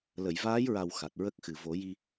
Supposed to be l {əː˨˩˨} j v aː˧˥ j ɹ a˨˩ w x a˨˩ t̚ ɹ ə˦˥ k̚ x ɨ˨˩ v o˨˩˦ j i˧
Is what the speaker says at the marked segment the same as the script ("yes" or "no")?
no